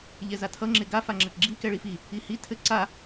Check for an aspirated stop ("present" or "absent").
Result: present